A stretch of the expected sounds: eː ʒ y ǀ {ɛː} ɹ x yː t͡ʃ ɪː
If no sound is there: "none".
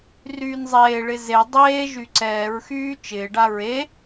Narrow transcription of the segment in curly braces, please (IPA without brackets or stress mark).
ɛː